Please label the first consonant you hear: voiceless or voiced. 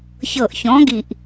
voiceless